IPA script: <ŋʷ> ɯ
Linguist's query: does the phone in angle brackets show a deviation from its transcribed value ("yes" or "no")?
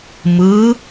yes